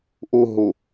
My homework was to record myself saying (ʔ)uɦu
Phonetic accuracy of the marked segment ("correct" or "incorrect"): correct